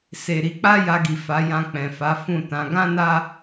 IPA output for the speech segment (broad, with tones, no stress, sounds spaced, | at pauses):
s e˨ ɾ i˨˦ k͡p a˦ j a˧ ɡ i˨ f a˨˦ j ã˧ k͡p ɛ̃˨ f a˨˦ f ũ˦˨ t ã˨˦ ɡ ã˦ n a˦